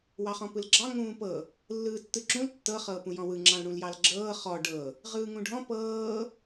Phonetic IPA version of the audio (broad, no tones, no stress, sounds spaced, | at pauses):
w ɑ χ ɔ̃ p ɯ l ɡ͡ǁ ɑ ŋ ũː p ɤ | lː ɯː tː ɯ ǁ ũ l tː ɤ χ ɤː p ũ j ɔ̃ w ɯ ŋ͡ǁ ɑ̃ l ɽ ũ l j ɑ l ɡ͡ǁ ɤː χ ɔ ɖ ɤ | ʁ ɯː ŋ ũ ɖʱ ɔ̃ p ɤː